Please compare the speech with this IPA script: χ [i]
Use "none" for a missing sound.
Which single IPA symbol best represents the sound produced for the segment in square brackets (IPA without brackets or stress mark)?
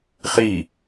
i